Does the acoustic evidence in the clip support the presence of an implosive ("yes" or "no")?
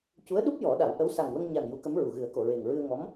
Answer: yes